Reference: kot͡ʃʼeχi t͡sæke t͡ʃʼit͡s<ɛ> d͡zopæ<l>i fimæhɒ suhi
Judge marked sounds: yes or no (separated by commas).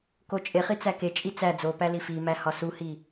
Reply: no, yes